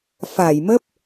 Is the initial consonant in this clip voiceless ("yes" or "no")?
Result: yes